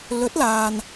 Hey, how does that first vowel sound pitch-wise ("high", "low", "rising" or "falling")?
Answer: rising